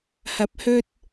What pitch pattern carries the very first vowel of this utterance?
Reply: rising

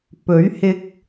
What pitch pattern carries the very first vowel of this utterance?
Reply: rising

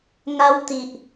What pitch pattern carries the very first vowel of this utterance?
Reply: high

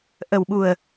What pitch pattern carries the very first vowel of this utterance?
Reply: low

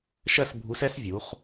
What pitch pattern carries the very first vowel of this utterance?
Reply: falling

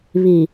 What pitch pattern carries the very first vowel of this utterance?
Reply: low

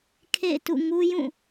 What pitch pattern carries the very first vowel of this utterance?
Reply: falling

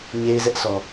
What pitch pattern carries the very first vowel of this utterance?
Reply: high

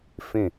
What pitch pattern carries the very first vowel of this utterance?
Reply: falling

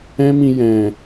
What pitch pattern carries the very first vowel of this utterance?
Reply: high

